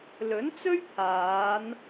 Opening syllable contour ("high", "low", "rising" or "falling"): rising